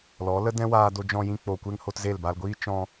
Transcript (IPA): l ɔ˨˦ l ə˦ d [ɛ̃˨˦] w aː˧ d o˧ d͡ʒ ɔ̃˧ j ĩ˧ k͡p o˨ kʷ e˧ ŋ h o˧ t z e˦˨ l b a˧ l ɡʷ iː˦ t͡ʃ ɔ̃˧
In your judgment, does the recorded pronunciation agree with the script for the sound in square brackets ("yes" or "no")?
no